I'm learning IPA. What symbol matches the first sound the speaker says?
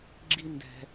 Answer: ɡ͡ǁ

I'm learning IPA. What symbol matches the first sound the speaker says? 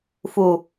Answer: f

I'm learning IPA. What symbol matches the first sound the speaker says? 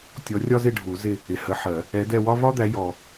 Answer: tʲ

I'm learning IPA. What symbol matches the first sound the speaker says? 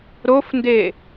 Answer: ɾ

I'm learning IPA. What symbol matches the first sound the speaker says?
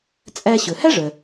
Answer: t͡sʼ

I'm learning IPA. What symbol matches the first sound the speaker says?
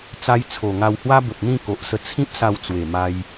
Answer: t͡s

